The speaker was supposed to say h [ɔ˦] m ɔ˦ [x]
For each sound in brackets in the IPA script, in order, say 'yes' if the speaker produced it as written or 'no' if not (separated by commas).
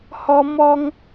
yes, no